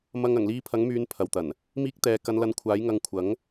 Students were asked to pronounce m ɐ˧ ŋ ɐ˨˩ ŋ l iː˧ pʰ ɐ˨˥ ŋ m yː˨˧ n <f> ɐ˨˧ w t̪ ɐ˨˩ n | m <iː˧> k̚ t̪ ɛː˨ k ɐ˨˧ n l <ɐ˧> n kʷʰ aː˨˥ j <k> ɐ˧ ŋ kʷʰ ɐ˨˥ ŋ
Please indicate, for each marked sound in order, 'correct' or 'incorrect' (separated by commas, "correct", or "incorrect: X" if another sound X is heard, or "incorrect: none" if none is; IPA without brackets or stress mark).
incorrect: pʰ, correct, correct, incorrect: ŋ